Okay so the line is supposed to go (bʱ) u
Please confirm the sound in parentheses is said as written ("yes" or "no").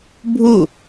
yes